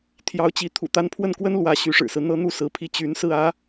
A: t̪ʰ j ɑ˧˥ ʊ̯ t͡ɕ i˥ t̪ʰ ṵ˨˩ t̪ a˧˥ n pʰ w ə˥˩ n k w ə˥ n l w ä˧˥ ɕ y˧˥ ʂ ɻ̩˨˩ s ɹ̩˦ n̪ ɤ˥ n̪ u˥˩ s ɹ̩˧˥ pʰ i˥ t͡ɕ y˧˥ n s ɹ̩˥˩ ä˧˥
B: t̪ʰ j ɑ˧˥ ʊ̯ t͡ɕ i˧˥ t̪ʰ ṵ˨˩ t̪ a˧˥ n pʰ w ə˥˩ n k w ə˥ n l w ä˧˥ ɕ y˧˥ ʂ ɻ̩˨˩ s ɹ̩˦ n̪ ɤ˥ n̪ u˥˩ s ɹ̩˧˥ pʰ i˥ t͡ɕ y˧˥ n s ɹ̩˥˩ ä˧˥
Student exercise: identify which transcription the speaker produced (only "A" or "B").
B